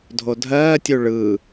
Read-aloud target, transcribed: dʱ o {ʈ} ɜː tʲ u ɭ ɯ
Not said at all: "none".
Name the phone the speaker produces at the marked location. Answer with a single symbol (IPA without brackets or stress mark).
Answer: dʱ